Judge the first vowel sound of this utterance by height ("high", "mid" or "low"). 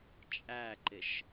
low